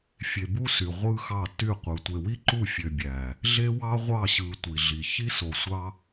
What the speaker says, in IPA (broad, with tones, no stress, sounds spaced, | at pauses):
fʲ e˨ b u˦ s y˨ ʁʷ ɯ˦ x ɑ˦˨ t y˦˨ qʷ ɯ˨ tʷ e˨ w i˦ ǃ u˦˨ fʲ ø˨ bʲ æ˨ | ɮ e˦ w ɑ˦ ʁʷ ɑ˦˨ ɕ ɯ˨ tʷ i˨ ɮ i˨ ç i˦ s o˨ sʷ ɑ˦